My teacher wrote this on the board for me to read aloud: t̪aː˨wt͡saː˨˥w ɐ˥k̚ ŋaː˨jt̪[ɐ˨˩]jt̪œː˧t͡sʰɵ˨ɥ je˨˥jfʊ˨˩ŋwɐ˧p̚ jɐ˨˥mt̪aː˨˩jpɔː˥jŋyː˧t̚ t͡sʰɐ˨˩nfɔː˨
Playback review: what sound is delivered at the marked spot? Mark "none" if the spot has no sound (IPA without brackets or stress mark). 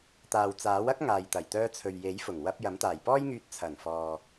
ɐ˨˩